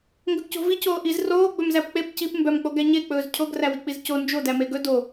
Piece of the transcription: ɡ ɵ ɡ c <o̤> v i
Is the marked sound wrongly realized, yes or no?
no